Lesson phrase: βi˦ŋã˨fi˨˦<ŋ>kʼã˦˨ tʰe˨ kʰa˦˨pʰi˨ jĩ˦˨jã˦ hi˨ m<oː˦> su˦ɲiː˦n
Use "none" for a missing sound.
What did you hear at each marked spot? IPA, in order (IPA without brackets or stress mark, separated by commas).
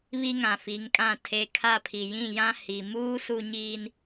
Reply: ŋ, uː˦